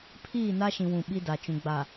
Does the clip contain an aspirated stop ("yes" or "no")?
yes